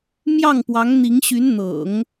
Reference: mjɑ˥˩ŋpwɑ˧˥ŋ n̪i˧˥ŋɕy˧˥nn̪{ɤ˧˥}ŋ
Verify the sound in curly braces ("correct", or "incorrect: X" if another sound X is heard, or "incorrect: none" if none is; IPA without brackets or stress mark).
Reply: incorrect: ɤ̰˨˩˦